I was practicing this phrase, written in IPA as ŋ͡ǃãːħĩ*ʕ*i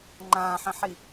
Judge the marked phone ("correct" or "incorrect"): incorrect